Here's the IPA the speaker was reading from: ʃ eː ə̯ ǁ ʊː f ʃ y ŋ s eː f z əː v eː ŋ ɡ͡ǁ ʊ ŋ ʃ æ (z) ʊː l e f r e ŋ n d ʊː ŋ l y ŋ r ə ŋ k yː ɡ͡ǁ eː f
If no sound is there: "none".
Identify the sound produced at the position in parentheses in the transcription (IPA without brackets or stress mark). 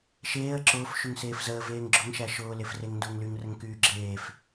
ʃ